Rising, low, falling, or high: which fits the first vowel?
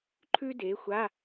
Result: high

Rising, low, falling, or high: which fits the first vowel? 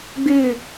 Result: falling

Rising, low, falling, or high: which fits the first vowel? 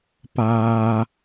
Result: high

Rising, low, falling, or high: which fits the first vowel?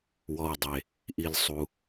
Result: low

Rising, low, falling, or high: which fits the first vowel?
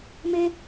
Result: high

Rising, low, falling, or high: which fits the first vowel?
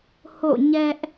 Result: falling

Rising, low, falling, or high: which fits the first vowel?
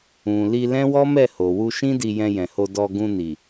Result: low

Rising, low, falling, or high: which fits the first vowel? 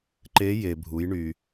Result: rising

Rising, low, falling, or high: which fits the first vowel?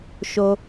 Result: high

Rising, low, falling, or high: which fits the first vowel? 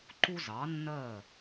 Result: high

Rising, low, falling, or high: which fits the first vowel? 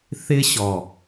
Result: high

